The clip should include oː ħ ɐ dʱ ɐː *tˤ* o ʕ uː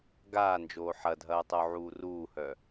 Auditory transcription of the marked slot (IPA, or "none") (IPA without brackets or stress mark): tˤ